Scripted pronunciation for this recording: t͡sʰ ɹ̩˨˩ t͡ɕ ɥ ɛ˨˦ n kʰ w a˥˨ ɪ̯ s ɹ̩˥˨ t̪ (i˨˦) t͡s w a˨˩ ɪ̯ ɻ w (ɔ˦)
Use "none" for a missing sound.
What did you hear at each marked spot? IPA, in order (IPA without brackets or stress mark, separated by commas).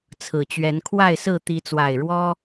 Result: i˨˦, ɔ˦